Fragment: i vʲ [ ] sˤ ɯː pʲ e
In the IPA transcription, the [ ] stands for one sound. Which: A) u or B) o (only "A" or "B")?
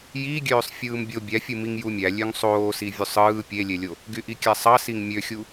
A